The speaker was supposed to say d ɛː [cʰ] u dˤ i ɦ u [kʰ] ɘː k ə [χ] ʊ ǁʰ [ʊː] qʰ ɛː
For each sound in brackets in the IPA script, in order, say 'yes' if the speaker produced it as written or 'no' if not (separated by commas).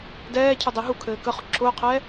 yes, yes, yes, yes